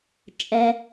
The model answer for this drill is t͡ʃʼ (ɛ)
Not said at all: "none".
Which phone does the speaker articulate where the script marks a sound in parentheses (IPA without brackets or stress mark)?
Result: ɛ